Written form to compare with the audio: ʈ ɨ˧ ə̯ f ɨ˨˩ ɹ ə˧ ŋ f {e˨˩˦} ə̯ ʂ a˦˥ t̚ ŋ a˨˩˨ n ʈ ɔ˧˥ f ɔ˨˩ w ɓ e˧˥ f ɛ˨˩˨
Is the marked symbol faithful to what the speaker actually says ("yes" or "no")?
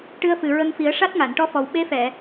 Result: no